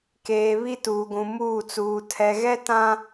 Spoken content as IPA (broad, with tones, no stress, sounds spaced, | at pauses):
k eː˨ β i˦ t uː˨ ɡʷ ũ˨ m uː˦˨ t͡s uː˨ tʰ ɛ˨ ɣ ɛ˦ t ã˦